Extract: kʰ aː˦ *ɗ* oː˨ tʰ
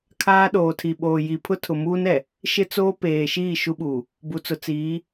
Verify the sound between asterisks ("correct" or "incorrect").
correct